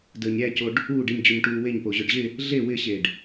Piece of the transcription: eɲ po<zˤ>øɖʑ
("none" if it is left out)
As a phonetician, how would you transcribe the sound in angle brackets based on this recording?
ʑ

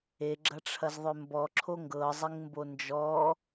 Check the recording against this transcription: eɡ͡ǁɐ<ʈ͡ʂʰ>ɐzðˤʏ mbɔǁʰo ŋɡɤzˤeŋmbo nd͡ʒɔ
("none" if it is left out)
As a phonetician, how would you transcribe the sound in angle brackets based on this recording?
ʈ͡ʂʰ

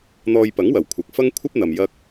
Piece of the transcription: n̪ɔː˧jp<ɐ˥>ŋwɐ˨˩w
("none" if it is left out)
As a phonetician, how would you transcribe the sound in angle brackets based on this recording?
ɐ˨˥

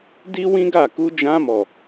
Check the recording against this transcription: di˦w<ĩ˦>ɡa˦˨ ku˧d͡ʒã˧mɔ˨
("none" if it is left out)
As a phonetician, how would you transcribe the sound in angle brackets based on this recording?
ĩ˦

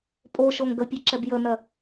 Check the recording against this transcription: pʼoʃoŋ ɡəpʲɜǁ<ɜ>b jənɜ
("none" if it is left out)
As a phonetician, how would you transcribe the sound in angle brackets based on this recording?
ɛ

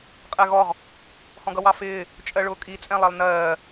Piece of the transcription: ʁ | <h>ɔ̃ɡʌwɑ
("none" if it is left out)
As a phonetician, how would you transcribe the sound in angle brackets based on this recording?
h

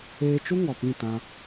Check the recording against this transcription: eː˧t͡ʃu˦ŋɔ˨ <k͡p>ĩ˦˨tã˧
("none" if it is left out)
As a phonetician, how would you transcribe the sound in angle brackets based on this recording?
p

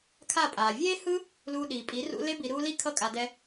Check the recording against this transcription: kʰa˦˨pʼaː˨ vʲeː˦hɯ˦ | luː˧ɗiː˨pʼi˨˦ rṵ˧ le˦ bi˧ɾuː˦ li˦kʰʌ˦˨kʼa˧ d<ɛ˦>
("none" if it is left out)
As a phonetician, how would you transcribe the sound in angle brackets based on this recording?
ɛ˦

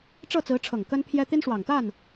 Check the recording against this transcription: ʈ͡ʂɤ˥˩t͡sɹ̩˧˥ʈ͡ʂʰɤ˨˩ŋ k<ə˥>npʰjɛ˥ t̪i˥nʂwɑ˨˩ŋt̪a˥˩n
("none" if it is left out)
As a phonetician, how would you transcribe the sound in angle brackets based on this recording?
ə˥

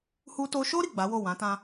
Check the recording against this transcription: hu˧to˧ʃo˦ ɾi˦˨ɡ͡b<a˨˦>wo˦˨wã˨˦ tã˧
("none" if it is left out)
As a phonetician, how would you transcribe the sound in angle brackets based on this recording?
a˨˦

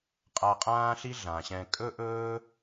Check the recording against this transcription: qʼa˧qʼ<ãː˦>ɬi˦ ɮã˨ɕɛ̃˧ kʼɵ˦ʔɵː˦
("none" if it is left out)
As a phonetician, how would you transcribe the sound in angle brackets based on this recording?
ãː˦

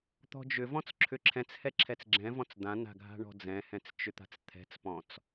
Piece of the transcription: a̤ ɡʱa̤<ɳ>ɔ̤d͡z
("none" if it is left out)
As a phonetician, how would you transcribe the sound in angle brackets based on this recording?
ɳ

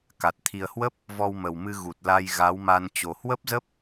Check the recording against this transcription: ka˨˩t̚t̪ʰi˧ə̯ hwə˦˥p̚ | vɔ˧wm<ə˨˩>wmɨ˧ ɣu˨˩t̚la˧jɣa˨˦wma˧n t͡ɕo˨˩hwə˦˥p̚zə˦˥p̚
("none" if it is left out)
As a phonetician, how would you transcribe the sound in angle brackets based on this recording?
ə˨˩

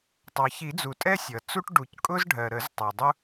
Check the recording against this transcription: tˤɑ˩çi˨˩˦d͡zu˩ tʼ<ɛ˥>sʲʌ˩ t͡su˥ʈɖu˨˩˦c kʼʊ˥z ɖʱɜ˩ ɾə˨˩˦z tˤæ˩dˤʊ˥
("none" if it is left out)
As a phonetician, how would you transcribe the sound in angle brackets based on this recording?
ɛ˥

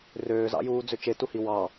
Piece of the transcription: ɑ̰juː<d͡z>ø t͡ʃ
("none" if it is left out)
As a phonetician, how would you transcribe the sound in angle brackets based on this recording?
d͡z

